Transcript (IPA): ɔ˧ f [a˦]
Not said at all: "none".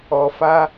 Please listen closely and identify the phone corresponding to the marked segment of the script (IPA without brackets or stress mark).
a˦